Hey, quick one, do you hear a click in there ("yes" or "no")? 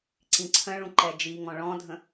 yes